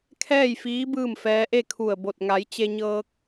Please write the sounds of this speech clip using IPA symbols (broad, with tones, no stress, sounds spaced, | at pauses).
kʰ ɛː˥˨ j f iː˧˥ b ɯː˥˨ m f ɛː˧˥ ʔ e˥˨ kʰ u˧˩ ə̯ b o˧˩ t̚ ŋ a˩˧ j t͡ɕ e˧ ɲ ɤː˧ k̚